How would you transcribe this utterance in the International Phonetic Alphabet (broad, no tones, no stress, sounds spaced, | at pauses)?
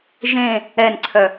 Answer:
ʒ ẽ | ɛ n ǀʰ œ